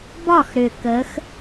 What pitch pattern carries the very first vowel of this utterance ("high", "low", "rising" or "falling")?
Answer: falling